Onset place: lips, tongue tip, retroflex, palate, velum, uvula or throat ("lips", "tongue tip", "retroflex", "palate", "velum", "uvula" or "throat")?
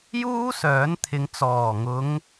palate